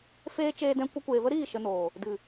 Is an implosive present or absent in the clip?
absent